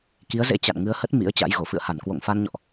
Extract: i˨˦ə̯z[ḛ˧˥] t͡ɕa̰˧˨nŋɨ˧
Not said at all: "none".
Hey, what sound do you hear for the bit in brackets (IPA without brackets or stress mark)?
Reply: ḛ˧˥